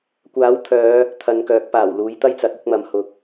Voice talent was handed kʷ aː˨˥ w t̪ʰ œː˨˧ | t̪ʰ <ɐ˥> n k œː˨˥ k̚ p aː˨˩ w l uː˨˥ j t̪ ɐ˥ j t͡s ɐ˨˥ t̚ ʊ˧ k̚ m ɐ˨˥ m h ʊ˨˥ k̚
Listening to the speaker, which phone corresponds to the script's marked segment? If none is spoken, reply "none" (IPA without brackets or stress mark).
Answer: ɐ˨